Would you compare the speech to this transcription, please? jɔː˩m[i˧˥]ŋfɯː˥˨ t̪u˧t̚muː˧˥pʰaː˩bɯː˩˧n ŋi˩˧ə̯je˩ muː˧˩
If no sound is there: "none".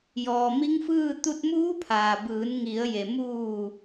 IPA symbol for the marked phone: i˧˥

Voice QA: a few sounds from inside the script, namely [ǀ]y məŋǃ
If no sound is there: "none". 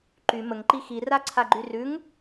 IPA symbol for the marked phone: ǃ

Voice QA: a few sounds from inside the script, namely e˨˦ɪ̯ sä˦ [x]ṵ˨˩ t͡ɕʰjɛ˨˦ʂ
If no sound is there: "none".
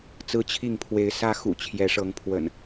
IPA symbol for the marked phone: x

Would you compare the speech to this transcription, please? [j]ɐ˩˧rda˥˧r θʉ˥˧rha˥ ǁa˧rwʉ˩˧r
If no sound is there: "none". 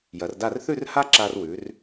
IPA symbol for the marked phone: j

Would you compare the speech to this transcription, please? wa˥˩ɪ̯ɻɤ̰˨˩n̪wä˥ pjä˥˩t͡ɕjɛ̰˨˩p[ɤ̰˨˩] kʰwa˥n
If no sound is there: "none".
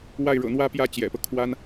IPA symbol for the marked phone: ɤ˦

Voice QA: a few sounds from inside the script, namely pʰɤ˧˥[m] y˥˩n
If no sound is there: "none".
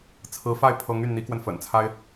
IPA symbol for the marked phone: ŋ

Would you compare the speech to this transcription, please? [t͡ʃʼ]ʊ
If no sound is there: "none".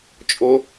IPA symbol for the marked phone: t͡ʃʼ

